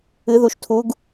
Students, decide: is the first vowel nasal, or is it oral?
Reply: oral